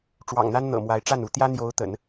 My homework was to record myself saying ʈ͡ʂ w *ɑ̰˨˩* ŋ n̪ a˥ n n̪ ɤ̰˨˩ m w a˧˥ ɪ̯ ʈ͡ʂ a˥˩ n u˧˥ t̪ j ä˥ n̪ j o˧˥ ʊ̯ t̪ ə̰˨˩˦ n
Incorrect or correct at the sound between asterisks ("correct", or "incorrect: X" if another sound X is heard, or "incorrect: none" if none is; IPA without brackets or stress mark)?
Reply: correct